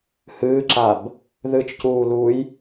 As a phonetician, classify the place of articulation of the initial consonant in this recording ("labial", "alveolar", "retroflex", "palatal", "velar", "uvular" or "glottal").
glottal